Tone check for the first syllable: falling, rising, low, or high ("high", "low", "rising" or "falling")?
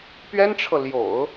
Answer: high